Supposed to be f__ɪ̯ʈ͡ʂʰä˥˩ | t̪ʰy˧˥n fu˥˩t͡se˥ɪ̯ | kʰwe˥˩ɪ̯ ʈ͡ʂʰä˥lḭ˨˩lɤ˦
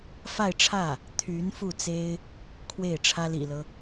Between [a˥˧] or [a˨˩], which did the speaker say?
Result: a˥˧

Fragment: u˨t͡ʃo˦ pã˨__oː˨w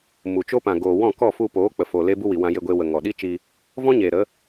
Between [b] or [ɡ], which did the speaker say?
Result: ɡ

